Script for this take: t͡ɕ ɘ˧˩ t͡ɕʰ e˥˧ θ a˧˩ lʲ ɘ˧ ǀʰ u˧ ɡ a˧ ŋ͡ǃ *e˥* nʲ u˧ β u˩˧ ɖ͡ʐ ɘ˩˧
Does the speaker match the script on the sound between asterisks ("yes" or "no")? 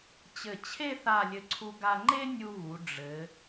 yes